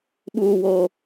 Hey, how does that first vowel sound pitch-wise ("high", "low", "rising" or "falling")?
low